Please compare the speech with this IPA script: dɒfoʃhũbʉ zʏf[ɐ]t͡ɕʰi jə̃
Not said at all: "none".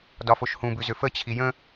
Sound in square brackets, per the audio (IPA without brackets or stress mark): ə